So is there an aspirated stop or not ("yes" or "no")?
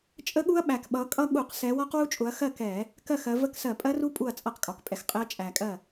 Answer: no